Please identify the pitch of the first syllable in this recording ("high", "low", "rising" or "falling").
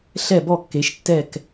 falling